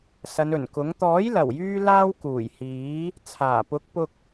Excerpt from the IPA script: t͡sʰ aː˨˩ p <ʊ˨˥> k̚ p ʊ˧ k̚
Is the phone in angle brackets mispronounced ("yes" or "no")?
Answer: no